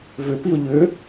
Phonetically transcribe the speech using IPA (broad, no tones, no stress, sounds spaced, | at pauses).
v ʏ p i ʊ̯ ʎ ʏ